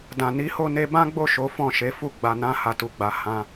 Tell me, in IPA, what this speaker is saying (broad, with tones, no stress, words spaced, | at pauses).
dã˨ni˨˦ho˦˨ ne˧bã˦ɡ͡bo˦˨ ʃo˨˦fɔ̃˦˨ʃe˨˦fu˦˨ ɡ͡ba˨nã˨˦ ha˧tu˨ɡ͡ba˧ hã˧